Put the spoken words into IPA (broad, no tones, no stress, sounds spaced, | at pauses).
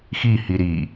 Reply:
x i h i ɾ i